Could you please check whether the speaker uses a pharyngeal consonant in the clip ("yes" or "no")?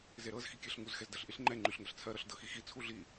no